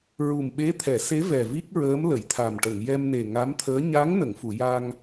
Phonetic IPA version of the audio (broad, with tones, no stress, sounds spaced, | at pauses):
ɹ u˨˩ m ɓ e˧˥ t̪ʰ ɛ˨˩˨ s e˧˥ v ɛ˨˩ v i˦˥ k̚ ɹ əː˧˥ m l ə˨˩˨ j t̪ʰ a˨˩ m ʈ ə˨˩˨ ŋ j ɛ˧ m n e˨˩ ŋ a˧˥ m t̪ʰ əː˧˥ ɲ a˧˥ ŋ n ə˨˩˨ ŋ f u˨˩˨ j a˧ ŋ